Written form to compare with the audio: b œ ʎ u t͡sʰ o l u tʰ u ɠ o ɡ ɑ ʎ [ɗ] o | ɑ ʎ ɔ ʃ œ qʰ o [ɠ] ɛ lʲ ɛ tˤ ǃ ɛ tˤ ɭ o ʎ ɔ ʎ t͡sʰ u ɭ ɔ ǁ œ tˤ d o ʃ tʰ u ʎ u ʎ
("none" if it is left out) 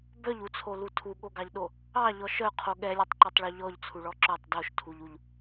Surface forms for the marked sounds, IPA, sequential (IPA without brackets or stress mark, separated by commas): ɗ, ɠ